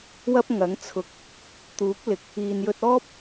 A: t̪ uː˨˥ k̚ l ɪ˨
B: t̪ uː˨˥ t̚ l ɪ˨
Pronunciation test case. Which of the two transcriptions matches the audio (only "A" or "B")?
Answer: A